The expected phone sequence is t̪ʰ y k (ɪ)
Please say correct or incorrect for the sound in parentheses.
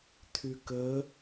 incorrect